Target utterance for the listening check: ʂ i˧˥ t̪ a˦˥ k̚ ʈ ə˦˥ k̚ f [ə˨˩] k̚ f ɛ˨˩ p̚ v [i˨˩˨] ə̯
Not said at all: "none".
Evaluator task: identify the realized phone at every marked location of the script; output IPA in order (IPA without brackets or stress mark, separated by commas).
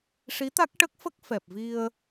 ə˦˥, i˧